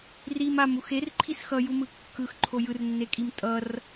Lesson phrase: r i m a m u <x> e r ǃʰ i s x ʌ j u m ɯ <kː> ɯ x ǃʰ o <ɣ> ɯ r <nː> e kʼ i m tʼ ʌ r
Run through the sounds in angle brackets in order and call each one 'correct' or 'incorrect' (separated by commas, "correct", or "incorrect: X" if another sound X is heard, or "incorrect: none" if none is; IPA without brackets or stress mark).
correct, correct, incorrect: j, correct